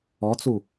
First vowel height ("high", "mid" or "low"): mid